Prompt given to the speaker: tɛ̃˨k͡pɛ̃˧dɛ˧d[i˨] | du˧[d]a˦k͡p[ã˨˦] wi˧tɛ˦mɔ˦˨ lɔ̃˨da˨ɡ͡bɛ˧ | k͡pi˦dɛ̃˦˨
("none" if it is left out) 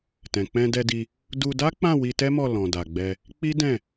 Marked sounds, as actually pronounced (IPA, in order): i˧, d, ã˦˨

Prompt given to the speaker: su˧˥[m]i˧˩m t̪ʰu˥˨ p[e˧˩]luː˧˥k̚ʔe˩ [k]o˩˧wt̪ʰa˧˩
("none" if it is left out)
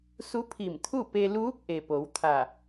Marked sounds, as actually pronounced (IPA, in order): pʰ, e˧, p

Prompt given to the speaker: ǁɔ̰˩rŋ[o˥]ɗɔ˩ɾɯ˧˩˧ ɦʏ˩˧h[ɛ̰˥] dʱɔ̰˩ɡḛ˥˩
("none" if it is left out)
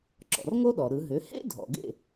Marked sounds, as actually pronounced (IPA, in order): o˥, ḛ˥

